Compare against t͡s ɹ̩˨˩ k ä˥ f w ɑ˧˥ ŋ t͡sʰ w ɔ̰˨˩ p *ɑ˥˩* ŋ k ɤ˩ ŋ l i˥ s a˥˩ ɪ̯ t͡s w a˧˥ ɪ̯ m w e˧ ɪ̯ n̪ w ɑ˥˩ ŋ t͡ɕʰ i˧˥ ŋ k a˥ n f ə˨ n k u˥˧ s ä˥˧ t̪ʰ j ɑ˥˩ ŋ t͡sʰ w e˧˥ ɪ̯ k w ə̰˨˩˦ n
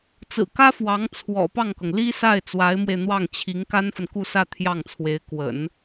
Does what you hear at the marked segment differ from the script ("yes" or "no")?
no